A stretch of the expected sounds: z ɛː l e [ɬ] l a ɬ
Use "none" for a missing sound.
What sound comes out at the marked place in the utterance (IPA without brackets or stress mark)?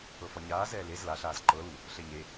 z